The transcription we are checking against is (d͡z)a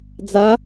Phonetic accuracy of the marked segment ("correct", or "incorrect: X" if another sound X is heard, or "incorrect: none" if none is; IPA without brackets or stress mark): correct